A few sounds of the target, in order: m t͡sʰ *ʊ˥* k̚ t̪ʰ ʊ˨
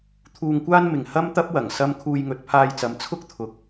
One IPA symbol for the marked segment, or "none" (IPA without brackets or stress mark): ʊ˥